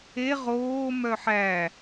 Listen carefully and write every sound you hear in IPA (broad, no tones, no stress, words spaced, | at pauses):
e ʁoː mœħæ